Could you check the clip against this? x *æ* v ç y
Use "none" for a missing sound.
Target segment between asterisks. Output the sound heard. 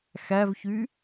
æ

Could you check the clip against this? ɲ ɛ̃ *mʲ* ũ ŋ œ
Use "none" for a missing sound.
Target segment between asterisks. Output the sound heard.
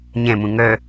m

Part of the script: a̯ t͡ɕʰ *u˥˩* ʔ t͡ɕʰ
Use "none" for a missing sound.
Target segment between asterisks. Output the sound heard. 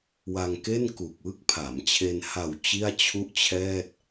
u˥˩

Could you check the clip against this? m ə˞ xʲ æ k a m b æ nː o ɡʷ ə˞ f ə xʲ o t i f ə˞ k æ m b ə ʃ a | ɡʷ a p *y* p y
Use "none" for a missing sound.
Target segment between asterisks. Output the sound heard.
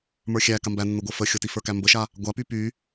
y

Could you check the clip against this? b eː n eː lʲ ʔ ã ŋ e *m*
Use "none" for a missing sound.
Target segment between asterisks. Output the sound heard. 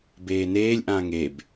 b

